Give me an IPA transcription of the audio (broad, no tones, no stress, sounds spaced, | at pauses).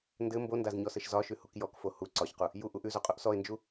n d ɘ m b o n d a z ɲ ɔ s ɘ ʃ z ɒ ʃ ʉ h u k j ɔ k f o h u ǀ ɒ ç q u | j u ʔ u ʔ ʉ z o qʼ u ʔ s ɔ ɪ̯ n d͡ʒ u